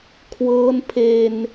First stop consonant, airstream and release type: aspirated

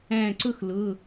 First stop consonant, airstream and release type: click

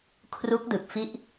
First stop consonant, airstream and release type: aspirated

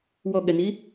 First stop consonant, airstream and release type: implosive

